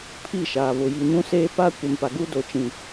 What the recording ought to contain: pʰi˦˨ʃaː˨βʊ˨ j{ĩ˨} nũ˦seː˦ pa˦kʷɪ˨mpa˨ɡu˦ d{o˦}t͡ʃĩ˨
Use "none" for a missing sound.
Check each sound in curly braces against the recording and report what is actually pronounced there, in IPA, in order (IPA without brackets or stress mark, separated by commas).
i˨, o˨